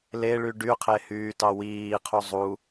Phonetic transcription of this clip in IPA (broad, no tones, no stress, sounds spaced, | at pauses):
l e ɭ y ɖ y qʰ e h yː t ɑ w iː qʰ u zˤ u